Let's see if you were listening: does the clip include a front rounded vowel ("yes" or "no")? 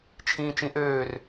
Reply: yes